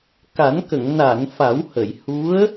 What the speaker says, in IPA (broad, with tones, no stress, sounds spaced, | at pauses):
k a˨˩˦ n k ə˨˩˨ ŋ n a˨˩˨ n f a˨˩˦ w h ə˨˩˨ j h u˧˥ ə̯